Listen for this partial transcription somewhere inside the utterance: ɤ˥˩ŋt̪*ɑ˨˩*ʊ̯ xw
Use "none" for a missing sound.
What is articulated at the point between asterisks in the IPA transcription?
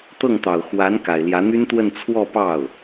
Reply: ɑ˨˩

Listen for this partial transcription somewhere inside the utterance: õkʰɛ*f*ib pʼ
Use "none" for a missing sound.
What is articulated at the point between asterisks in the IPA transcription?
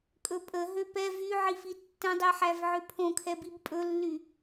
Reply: b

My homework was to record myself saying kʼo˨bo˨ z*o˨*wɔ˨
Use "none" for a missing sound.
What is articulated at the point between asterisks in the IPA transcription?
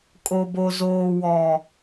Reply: oː˨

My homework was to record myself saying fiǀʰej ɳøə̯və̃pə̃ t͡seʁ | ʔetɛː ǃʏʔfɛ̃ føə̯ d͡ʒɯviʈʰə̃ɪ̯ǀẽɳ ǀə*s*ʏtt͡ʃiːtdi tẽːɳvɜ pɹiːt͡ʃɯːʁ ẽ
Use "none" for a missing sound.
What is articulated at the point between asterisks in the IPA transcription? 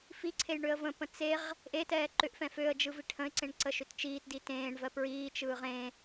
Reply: ʃ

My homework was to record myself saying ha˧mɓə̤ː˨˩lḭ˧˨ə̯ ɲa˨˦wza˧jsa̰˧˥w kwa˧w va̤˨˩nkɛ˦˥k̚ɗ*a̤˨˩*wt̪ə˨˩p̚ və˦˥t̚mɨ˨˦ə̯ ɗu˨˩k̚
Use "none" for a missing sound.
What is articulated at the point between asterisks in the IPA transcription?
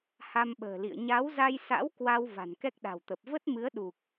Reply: a̤˨˩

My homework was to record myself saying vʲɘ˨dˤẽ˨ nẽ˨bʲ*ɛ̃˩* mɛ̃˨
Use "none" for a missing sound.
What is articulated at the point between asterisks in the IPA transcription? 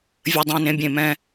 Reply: ẽ˩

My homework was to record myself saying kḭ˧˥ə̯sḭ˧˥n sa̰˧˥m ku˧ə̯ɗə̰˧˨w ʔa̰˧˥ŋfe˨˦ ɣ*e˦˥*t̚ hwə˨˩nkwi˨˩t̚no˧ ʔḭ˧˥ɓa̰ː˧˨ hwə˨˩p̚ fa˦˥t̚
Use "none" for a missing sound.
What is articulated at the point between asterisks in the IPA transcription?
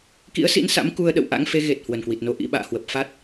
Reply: e˨˩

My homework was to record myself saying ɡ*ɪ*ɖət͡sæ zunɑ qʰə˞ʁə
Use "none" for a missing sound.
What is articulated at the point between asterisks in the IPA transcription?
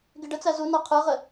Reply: ɪ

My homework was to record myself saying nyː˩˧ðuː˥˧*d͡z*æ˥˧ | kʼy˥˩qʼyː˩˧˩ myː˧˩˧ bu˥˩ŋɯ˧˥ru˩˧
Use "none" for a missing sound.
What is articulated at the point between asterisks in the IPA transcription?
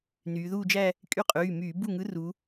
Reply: d͡ʒ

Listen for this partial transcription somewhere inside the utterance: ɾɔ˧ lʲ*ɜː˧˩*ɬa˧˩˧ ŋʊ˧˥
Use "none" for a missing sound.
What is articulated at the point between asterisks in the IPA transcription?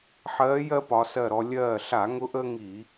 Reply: ɜː˧˩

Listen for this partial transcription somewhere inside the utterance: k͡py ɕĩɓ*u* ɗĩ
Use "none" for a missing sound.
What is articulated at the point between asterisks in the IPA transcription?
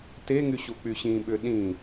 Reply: ʏ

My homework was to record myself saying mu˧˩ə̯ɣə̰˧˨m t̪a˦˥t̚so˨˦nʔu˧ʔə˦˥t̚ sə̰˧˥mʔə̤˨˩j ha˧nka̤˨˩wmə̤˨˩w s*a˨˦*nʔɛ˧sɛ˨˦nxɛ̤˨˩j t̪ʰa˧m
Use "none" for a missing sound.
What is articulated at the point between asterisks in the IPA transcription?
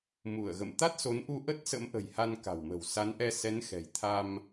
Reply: a˨˦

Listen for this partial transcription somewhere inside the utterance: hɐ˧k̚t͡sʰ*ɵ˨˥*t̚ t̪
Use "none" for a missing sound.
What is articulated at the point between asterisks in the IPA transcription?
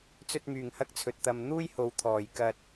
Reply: ɵ˨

